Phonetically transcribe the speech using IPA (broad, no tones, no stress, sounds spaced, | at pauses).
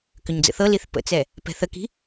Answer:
k ʏ ɲ d͡z ə̰ θ ɤ l i θ p ə̰ t͡s ɛ | p ɛ̤ θ ə k i̤